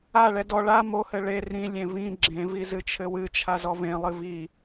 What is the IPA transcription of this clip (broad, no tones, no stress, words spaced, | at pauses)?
aɭɛ dɔ ɭa mohɘ ɭe rĩlʲẽ vĩ ɡ͡ǁẽvi zɨt͡ʃʰɘwɨt͡ʃʰa zɔvẽlˠɨ vi